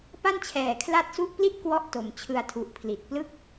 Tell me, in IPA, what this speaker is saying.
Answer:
p a˥˩ n t͡ɕʰ ɛː˨˩ kʰ l a˦˥ t̚ s u˦˥ ʔ p l i˥˩ t̚ k w ɔ˥˩ ʔ t o˨˩ m t͡ɕʰ ɯ˧ a̯ tʰ u˨˩ ʔ pʰ l i˨˩ t̚ p l ɯ˥˩ k̚

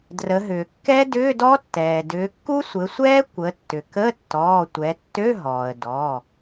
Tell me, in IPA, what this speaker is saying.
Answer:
d r ə˩˧ ɦ ʏː˩ kː ɛ˦˥ d ʏː˧˥˧ d ɔ˦˥ tː ɛː˩ d ʏː˩˧ kː u˦˥ sʷ ɘ˩˧ sʷ ɛː˦˥ kʷ ə˩˧ tː ʏ˩ k ə˧˥˧ tː ɔː˩˧˩ tʷ ɛ˩˧ tː ø˧˥˧ ɦ ɔː˩ ə̯ d ɔ˩˧˩

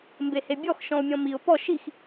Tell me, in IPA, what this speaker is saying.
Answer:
m b e h e bʲ ɔ x ʃ ɔ̃ ʊ̯ mʲ ɔ̃ m i ʊ̯ p ɔ ʃ i x

